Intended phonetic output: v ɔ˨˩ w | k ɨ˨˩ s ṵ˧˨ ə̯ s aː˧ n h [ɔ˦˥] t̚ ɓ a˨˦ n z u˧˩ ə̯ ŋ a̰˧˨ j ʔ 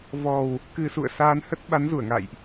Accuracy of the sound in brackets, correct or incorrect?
incorrect